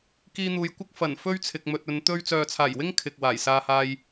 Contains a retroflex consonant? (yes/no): no